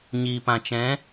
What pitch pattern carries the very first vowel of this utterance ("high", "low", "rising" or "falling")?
low